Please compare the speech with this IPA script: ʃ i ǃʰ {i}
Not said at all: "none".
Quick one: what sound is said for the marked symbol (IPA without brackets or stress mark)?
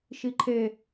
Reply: e